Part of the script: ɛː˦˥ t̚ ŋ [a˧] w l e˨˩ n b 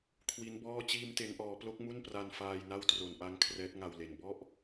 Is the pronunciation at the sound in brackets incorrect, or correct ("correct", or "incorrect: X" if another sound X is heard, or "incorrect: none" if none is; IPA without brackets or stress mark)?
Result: correct